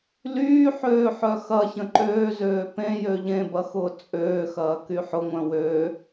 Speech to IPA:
l yː ħ øː ħ œ x ɐ ç ə̃ ǃ øː z øː p ẽ j ø ʎ ẽ b ɐ x ʊː t͡sʼ øː x ɐː k y ħ ʊ ŋʷ œ̃ w ø

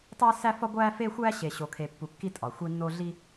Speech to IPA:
tˤ æ˦ s æ˦ f ɒ˦ ɡʷ æ˦ f e˦ xʷ æ˦ ɕ e˨ ɕ o˨ kʰ e˨ pː u˨ kː i˦ tʼ ɒ˨ xʷ i˦ nː o˦ ɮ i˦

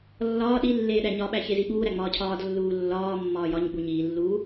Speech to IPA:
lː ɒː ɗ i lː eː ɗ æ ɲ ɒ ɓ æ ç e z i ɓ uː ɾ æ ŋ͡m ɒː cʰ ɒː d lː uː lː ɒː mː ɒː j ɒ ɲ ɡ͡b u ɲ iː lː uː

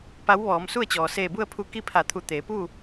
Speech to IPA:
p a˧˥ w ʋ ɔː˩˧ m s u˥˨ ə̯ t͡ɕ ɔː˩ s eː˧˩ b u˥˨ ə̯ pʰ u˧ k i˥˨ pʰ a˧˩ t̪ʰ u˧˩ t̪ eː˩˧ p uː˥˨

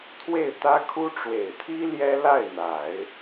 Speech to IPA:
t̪ʰ w e˥˩ ɪ̯ t̪ ä˥ kʰ u˥ ʈ͡ʂ w e˨˩ ɪ̯ t̪ʰ i˥ l j ɛ˥ l a˥˩ ɪ̯ n̪ a˨˩˦ ɪ̯

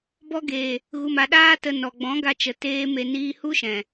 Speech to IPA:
b ɔ˧ ɡ eː˨ | ɣ u˨ m a˨ ɗ aː˧ t ə˨ n ɔ˨ ɡ͡b ɔ̃˨˦ ɡ a˧ t͡ʃ ə˨ t eː˧ m e˧ n iː˧ h u˦ ʃ ɛ̃˨

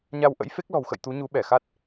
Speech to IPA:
ɲ a˧ w ʔ ə̰˧˥ j f e˦˥ k̚ l ɔ̤˨˩ w x ə̰˧˨ j t̪ u˨˦ ɲ u˨˦ ɓ ɛ˧˩ x a˦˥ t̚

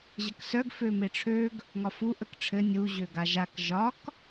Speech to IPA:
ʑ ə k s œ ɡ f ø m e ʈ͡ʂʰ ø ɡ | ŋ ɒ f u ʔ ə k ʈ͡ʂʰ ɘ nʲ u ʑ ø ɡ a ʒ a k ʒ ɒ k

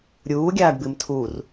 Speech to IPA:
ɾʲ uː ɡʲ aː ɖ b ɨ m tʰ u r

